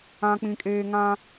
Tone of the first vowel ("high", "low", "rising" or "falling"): high